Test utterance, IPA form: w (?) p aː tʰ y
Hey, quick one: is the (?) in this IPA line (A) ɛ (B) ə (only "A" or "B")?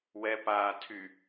A